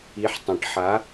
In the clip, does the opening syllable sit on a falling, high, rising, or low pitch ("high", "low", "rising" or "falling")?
rising